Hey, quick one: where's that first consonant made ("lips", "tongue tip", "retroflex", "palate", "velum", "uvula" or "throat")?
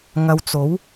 velum